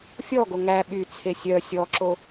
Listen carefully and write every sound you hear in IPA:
fʲ ɔ ɡ o ŋ æ ɓ y t͡sʰ e sʲ œ sʲ ɔ ǁ o

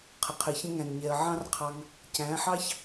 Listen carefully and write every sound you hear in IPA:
qʰ ə˨ qʰ ɪ˨ ç ə̃˧ ŋ æ̃˨ n ɲ ɛ˨ ə̯ ʕ ɑ̃˦ r qʰ ɑ˧ ŋ | c æ̃˨˦ ħ ɑ˦ ç

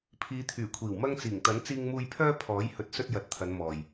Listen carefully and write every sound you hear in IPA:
pʰ iː˨˧ t̪ʰ yː˨˩ kʷʰ iː˨˩ w m ɐ˧ ŋ t͡s iː˨˩ ŋ t̪ ɐ˨˥ n t͡s iː˧ ŋ m uː˧ j pʰ œː˧ pʰ ɔː˨˥ j h ɵ˨˥ t̚ s ɵ˧ t̚ j ɐ˨˥ t̚ t̪ʰ ɐ˨˧ n m ɔː˨ j

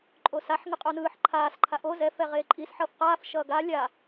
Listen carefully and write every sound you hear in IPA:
ǃʼ o s a ħ ŋ ɯ qʼ o n ɯː ħ ǃʰ aː s ǃʰ a ʔ o z ɛ f ɛ ʁ eː ǃʼ i s ħ ʌː f q aː f ʃ ʌː ɡ a lʲ a

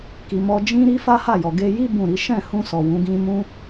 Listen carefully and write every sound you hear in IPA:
k i˨ m ɔ˧ d͡ʒ ĩ˦ ɾ i˦ f a˦ h a˦˨ j ɔ˨ ɡ e˧ j i˦ b ũ˦˨ ɾ i˨˦ ʃ ɛ̃˦˨ h ũ˧ s ɔ˨ w ũ˨˦ ɡ ĩ˦ m ũ˦

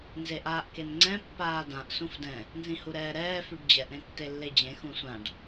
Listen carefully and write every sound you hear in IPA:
n z e ʔ aː ʔ k e n ŋ͡ǀ ɛ̃ pː aː d ã ʔ s ũ f d ɛ̃ | n z ĩ h u ɾ ɛː ɾ ɛː f y ɖ d͡ʑ ɛ ʔ ɾ ẽ tː e lː e d͡ʑ ẽ x ũ sʷ ã ɖ

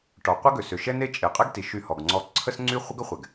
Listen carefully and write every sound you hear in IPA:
ʈ ɔ˩ qʷ ə˥ ɡ ø˩ s ø˩ ʃ ɛ˥ n e˥ t͡ʃʼ e˩ qʼ ɛ˥ ɡ t i˩ ʃ y˧ h ɔ˩ ɡ ŋ͡ǀ ɔ˧ ǀʰ ə˥ s ŋ͡ǀ y˥ χʷ ə˥ ɡ ə˥ χʷ ɛ˩ ɡ

